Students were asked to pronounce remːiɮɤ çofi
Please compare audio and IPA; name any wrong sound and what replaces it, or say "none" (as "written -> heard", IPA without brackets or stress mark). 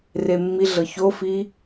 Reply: none